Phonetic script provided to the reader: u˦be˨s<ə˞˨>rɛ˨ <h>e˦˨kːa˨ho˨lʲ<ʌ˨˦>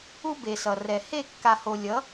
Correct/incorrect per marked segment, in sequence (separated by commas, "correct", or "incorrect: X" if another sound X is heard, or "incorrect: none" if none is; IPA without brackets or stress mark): incorrect: ʌ˨, correct, correct